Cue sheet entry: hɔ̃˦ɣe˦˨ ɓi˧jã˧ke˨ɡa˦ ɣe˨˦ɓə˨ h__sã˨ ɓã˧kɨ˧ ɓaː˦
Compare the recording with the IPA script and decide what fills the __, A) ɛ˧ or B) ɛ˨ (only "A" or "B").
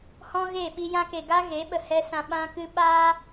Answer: A